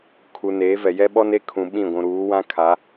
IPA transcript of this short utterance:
kʰ u˨ n eː˨˦ v ɛ˨ j ɛ˦ ɓ ɔ˦ n e˦ kʰ ũ˨ ɓ ĩ˦˨ ɡʷ ũ˨ ɾ uː˨˦ w ã˦ kʰ a˨˦

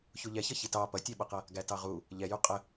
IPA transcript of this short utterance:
ç u ʎ ɛ ç ʌ ç i t ɑ p ʌ tʲ æ ɓ ʌ q ʌ | ɡ æ t ɑ ʁ u | ʎ ɛ j u qʼ ə

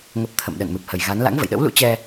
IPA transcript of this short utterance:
ŋ ə˨˩ p̚ t̪ʰ ə̰˧˨ m ɗ ə̰˧˨ n m ɨ˨˩ p̚ h ə˨˩ j ɣ a˨˦ n l a̰˧˥ ŋ v ə̰˧˨ j ɗ ə̰˧˥ w l ṵ˧˥ t͡ɕ ɛ˧

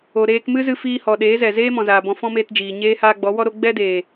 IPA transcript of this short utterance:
o˨ ɾ eː˧ k m ɨ˦ z ɨ˧ f iː˧ h ɔ˨ ɗ eː˨˦ z ɛ˨ z eː˦ m ɔ̃˨ z aː˨ b ɔ̃˧ f ɔ̃˦ m eː˧ t d͡ʒ iː˨ ɲ eː˧ h aː˧ ɡ͡b ɔ˨˦ w ɔ˦ ɾ o˦ ɡ͡b ɛ˦ d eː˨

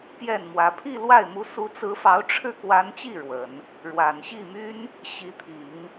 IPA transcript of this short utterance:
p j ɛ˥˩ n m w ä˧˥ pʰ i˥˧ l w a˥˩ ɪ̯ m u˧˥ s u˧˥ t͡s ɹ̩˧˥ f ɑ˧˥ ʊ̯ ʈ͡ʂʰ ɻ̩˥˩ k w a˧˥ n t͡ɕ i˥˩ ɻ w ə˨˩˦ n | ɻ w a˨˩ n ɕ i˥˩ m y˥ n | ɕ i˧˥ t̪ʰ i˨˩˦ ŋ

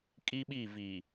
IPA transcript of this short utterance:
kʼ i˦ ɓ i˦˨ v i˨

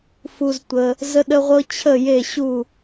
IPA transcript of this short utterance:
f u˧ z tʷ ə˧ | z ə˥ ɗ ə˥ ʁʷ ɤ˥ t͡ɕʰ ə˥˨ j e˥˨ ɕ u˥˨

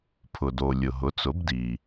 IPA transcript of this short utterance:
pʰ ʊ˩ d o˩ lʲ ʊ˩ ɦ ʊ˩˥ t͡s ʊ˩˥ b d i˩

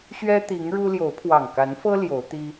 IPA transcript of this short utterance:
ɕ ɥ ɛ˦ t̪ i˨˦ ŋ ɻ u˦ l j o˨˦ ʊ̯ pʰ w ɑ˨˩ ŋ k a˨˦ n f ɤ˦ l j o˨˦ ʊ̯ t̪ i˦

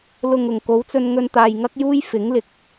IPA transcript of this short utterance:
l ʊ˨ ŋ ʊ˨˩ ŋ k o˨˥ w t͡s ɵ˧ n ŋ ɵ˧ n t̪ aː˨ j ŋ ɐ˥ k̚ j uː˥ j f ɪ˨˥ ŋ l ɪ˨ k̚

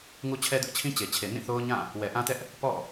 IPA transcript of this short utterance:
ŋ u˦ t͡ɕʰ ɛ˦ d ʊ˦ ʔ t͡ɕʰ ĩ˦ t͡ɕ e˨ t͡ɕʰ e˨ n ĩ˦˨ θ o˦ ʊ̯ ɲ ã˦˨ | w ɛ˨ ʔ ã˦ t ɛ˦ ʔ | p ɔ̰˦˨

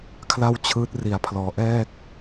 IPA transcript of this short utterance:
kʰ l a˥˩ w t͡ɕʰ ɯː˦˥ t̚ r i˨˩ a̯ pʰ l ɔː˩˦ ʔ ɛː˥˩ k̚

